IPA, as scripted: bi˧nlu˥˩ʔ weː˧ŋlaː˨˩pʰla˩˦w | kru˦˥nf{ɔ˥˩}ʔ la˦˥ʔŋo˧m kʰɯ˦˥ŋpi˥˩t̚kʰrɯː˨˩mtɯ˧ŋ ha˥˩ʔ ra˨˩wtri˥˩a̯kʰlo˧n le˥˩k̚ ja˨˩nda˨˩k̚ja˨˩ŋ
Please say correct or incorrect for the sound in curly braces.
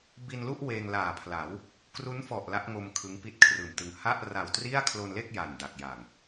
incorrect